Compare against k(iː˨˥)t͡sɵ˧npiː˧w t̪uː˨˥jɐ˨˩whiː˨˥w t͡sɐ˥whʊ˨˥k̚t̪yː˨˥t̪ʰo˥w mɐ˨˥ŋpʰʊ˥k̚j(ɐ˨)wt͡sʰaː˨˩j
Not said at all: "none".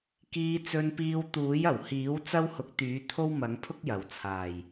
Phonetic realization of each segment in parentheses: iː˧, ɐ˨˩

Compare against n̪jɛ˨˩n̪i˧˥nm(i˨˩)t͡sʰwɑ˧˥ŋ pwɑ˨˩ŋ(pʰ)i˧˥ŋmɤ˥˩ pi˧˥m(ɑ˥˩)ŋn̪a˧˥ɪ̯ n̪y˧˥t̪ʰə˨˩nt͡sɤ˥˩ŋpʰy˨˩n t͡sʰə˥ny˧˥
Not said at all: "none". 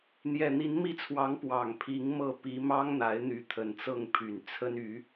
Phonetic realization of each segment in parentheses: i˥˩, pʰ, ɑ˥

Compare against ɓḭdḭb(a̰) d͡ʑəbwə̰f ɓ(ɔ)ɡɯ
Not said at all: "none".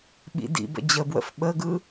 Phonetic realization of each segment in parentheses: ə̰, ə

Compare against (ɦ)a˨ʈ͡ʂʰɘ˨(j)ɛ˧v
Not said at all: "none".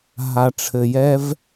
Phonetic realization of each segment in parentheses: ɦ, j

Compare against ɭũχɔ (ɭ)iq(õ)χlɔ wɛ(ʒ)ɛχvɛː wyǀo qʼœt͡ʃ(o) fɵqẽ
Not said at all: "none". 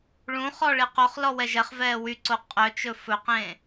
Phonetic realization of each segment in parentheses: ɭ, o, ʒ, ɵ

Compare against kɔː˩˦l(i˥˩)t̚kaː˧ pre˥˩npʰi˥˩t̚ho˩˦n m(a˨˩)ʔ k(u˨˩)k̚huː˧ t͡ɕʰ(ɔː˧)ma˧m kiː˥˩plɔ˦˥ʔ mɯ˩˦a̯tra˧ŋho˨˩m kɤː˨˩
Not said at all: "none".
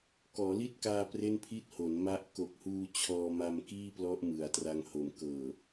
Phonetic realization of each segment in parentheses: i˥˩, a˦˥, o˨˩, ɔː˧

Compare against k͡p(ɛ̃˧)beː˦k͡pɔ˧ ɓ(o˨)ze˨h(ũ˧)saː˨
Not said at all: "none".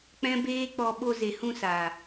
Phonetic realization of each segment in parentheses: ɛ̃˦, o˧, ũ˧

